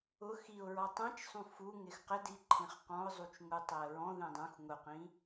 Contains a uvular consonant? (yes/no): yes